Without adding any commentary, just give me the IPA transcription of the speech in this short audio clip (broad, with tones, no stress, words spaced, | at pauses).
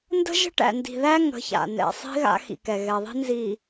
ndə̤˦ ʒə̤˦ʈæ̰˨ndi̤˨ðæ˦ ŋə̤˨˦ça̰˨ nɛ̰˨sˤi̤˦ ɣa̰˦ xḭ˨kɛ˨ɣɛ˨ðˤi̤˦ nzi˨